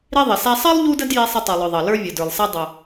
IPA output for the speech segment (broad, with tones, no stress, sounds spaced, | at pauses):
ɾ i˧ ðˤ ɪ˩ s æ˧ sˤ ɑ˥ lˠ ʎ u˥ d ə˥ d j i˧ sˤ ɪ˧ tˤ i˩ lˠ ʊ˩ ðˤ ʌ˩ l ə˞˧ vʲ ʊ˩ d ə˞˩ lˠ s ɛ˧ dˤ ʊ˩